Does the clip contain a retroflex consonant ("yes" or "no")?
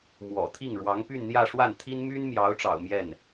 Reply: yes